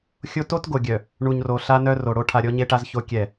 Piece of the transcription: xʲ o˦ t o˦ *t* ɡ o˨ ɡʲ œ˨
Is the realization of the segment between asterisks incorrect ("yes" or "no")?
no